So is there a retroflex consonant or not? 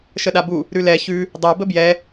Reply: no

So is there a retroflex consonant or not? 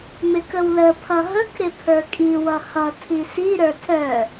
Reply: no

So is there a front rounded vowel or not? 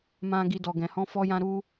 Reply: no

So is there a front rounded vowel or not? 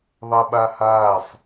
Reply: no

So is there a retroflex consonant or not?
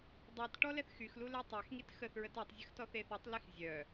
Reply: yes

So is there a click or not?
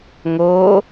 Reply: no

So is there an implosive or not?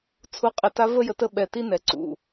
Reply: yes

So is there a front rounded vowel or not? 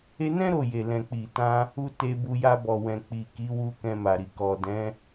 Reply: no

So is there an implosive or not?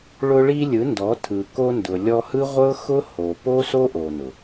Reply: no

